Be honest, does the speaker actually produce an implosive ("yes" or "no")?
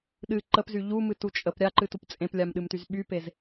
yes